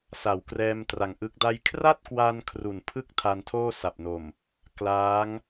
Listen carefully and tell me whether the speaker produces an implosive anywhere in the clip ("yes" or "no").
no